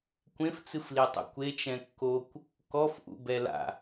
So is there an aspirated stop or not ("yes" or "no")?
no